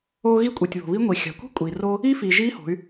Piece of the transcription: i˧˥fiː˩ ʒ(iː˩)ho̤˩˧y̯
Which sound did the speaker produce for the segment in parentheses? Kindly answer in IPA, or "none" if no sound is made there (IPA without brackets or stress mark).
iː˧˥